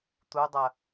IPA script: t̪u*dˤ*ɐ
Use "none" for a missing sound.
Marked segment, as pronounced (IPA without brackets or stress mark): dˤ